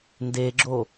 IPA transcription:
n d e ɡ͡ǁ o

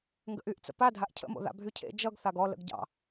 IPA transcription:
ŋ ɡ ə̰ ʔ y ʔ t͡s ə̰ p a dʱ a ʔ cʰ ə̰ m o̰ ð a̰ bʱ y cʰ ḛ d͡ʒ ʌ ɡ θ a ɡ ɔ l ə̰ ɡ ɟ ɑ̰

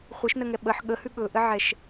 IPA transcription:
χʷ ɘ ʃ n ə ŋ ɛ ɓ ə ħ ɠ ə h ʉ ɠ ɵ ʔ ɘ ʕ ɛ ʃ

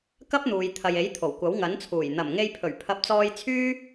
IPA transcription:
k ɐ˥ p̚ n̪ uː˨ j t̪ʰ ɐ˨ j e˨˥ j t̪ʰ o˨˩ w kʷ ɐ˨˥ w ŋ ɐ˨˥ n t͡sʰ uː˨˩ j n̪ ɐ˨˩ m ŋ e˧ j pʰ ɵ˨˩ ɥ pʰ ɐ˨˥ p̚ t͡s ɔː˧ j t͡sʰ yː˥

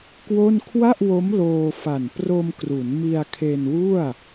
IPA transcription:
k w o˥˩ n kʰ w a˥˩ ʔ w o˦˥ m l oː˧ f a˨˩ n p r o˧ m k r u˩˦ n m i˧ a̯ kʰ e˧ n w u˥˩ a̯

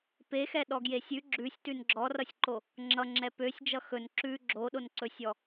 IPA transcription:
p e x ɛ ɗ ɔ ɡ j e sʲ ʉ ɡ͡ǁ ʉ sʲ t ʉ n ɡ͡ǁ ɔ r ʌ sʲ ǃ o | ŋ͡ǁ ʌ ŋ͡ǁ ɛ p ø sʲ d͡ʒ ʌ x ɵ n ǁ ʉ ɡ͡ǁ o ɗ o n ǀ ɵ sʲ ɔ

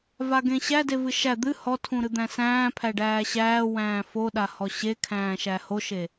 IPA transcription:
v a ɡ ẽ ɕ æ d e v ɨ ʃ æ d̪ ɨ h ɔ tʰ ũ ɾ ɨ d̪ æ̃ s æ̃ː pʰ æ ɖ æː ɕ æː w æ̃ː f o ɗ a h ɔ ɕ e kʰ æ̃ː ʃ æ h o ʃ e

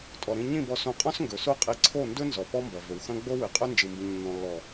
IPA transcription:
tʼ ɔ˨ ɾ ĩ˦ ɲ ĩ˦˨ b ɔ˧ s õ˧ qʼ ɔ̃˦ s ŋ ɡ ɵ˨ s o˦ qʼ i˧ ǀʰ o˦˨ n d ɵ˦ n z ɔ˨ p ɔ˦ m b ɐ˨ v ɵ˨ w x ɐ̃˦ ɡ͡b o˦ w ɨ˨ qʼ ɵ˦ n d͡ʒ ɨ˨ m b ĩ˨ ɲ nː ɔ̃˨ lː ɔ˨

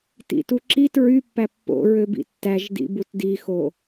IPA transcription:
t ḭ t u ǁ i t ɹ y pː æ pː o̰ ɹ ø b ḭ tː æ ʒ d ḭ b u t d i x o

